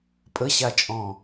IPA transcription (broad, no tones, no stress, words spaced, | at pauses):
pʼəɕat͡ʃʼɔ̃